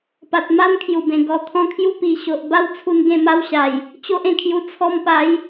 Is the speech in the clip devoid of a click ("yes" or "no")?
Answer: yes